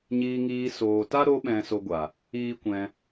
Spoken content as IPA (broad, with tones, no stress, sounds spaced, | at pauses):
ɲ iː˧ ŋ iː˧ s oː˨ t a˦ ɾ o˧ ɓ ɛ̃˨ s o˧ ɡʷ a˨ | iː˦ kʷ ɛ̃˧